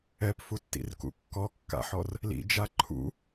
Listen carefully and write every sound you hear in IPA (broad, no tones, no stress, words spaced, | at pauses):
ɛpfutːḭrkṵ kːɔkːa̰ħɔr | lḭd͡ʒa ǃʰṵ